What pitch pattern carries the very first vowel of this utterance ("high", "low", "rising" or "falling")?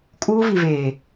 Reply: high